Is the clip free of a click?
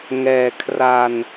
yes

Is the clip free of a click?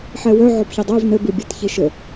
yes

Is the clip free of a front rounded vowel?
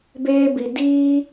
yes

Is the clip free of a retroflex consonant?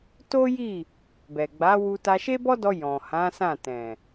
yes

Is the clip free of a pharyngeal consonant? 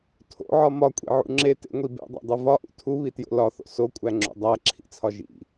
no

